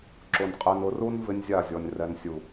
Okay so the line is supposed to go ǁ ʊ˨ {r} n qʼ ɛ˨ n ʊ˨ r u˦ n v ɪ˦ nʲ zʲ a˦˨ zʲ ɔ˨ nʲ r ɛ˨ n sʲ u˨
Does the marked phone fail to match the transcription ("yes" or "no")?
yes